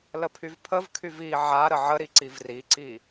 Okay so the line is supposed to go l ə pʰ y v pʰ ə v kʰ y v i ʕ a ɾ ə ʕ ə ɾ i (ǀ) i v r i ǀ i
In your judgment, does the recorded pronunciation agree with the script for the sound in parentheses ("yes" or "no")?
yes